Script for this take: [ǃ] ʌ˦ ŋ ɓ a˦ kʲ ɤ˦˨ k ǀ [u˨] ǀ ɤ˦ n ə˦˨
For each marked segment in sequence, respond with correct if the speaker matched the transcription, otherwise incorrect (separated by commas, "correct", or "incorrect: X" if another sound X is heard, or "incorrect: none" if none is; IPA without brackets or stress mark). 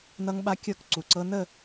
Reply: incorrect: n, correct